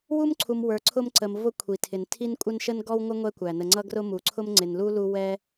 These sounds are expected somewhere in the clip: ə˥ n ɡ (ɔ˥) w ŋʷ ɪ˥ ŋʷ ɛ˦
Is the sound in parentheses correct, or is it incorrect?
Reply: correct